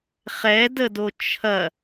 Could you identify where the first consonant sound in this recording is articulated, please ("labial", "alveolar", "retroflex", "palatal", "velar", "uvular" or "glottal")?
uvular